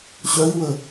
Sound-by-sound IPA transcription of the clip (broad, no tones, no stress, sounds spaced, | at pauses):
ɕ œ i̯ w ə